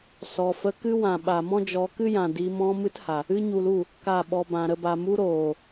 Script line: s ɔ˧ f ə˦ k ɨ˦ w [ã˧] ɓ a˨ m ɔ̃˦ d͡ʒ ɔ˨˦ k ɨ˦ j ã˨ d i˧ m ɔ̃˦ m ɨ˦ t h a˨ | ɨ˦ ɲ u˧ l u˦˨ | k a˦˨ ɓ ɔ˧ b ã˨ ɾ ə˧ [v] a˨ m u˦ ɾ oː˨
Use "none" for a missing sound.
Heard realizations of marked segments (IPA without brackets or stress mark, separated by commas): ã˨, b